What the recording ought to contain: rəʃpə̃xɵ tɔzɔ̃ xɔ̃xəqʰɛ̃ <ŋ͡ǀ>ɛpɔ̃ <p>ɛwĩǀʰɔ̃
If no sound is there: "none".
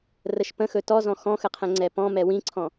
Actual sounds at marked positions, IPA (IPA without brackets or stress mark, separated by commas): ŋ͡ǀ, m